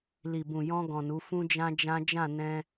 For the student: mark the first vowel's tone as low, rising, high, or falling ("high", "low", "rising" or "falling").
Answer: low